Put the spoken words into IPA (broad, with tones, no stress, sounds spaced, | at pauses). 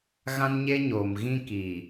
ɣ ã˦ n ɲ e˦ ɲ oː˨ m ɣ ĩ˦ k iː˨